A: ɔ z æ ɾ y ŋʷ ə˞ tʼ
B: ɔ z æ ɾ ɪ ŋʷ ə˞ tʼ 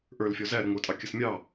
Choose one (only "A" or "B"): B